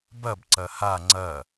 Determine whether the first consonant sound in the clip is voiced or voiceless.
voiced